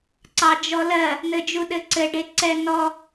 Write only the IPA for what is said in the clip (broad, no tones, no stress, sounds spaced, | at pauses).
ǀ ɑ d͡ʒ ɔ l ɜ | n̪ ɘ d͡ʒ u ɗ ɘ ǀ ɘ ɖ e ǀ ɛ n ɔ